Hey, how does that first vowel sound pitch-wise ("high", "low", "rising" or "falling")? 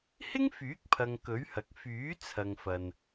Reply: high